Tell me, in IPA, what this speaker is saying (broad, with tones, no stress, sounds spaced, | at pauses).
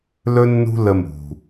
l ɵ˦ nː ṳ˦ l ə˧ m ṳ˨